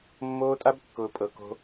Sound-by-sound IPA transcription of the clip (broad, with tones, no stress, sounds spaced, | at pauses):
mː oː˦ tʼ a˦ b kː ʊː˨ pʼ ɤ˨ k o̤˦